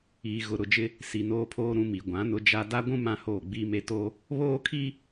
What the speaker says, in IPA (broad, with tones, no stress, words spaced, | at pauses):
iː˨ɣʊ˨ ɾʊ˨d͡ʒɪ˦ | si˨noː˦pʰoː˦ɾũ˦ mi˨ɡʷã˨˦nʊ˦ d͡ʒa˦ da˦ɡʷũ˦ mã˦hoː˦˨ɡ͡biː˦me˦ to˦ | βoː˦ kʰi˦